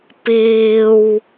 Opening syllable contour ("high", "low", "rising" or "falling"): low